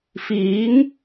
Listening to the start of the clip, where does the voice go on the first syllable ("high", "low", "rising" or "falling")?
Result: rising